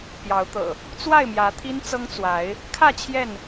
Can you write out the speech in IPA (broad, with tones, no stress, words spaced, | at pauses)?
pjɑ˨˦ʊ̯t̪ɤ̰˨˩ | t͡swa˥˨ɪ̯mjä˨˦t̪ʰi˦n t͡sɤ˦ŋt͡swa˨˦ɪ̯ | kʰä˥˨ t͡ɕʰjɛ˥˨n